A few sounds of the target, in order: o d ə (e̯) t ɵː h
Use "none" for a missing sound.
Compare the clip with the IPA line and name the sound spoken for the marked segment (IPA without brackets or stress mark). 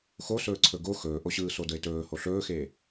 e̯